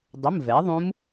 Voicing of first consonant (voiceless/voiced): voiced